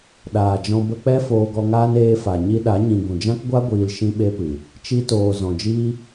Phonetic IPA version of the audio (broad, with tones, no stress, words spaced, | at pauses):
ɗaː˨d͡ʒɔ̃˧ bə˧k͡pɛ˦ foː˧ɡɔ˧ŋaː˦n eː˧fa˨ ɲi˧ɗa˨˦ɲĩ˨ ɡũ˨d͡ʒã˦kɡʷa˦ ɡʷiː˧l ʃĩ˦ɓe˦pɨ˨ | t͡ʃi˧toː˨ zɔ̃˨d͡ʒiː˦